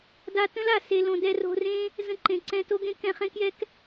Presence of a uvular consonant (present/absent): present